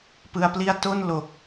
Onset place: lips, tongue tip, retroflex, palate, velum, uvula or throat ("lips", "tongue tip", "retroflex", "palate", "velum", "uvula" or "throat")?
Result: lips